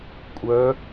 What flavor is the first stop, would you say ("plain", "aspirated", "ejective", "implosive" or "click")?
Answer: ejective